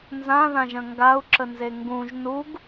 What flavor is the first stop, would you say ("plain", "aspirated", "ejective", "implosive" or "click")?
plain